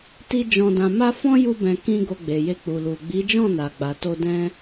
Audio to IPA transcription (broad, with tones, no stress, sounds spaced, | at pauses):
t i˧ d͡ʒ ɔ̃˨ d ã˨ m a˧ f ɔ̃˦ j u˧ b ɛ̃˨ k ĩ˧ ɡ o˧ ɡ͡b e˨ j e˧ k͡p u˨ l u˨ ɡ͡b i˨˦ d͡ʒ ɔ̃˦˨ n a˨ ɡ͡b a˨ t o˧ d ɛ̃˦